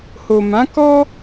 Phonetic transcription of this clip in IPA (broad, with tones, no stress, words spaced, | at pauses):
ho˨mã˨˦ kɔ˦